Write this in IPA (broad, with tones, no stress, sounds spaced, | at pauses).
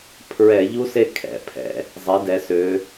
pʰ ɹ ɛ˧˩˧ ʎ u˦˥ s e˥˨ kʰ ɛ̰˧˩˧ pʰ ɛ̰˩˧ | zˤ e˩˥ d ɛ˩˧ s ø˩˧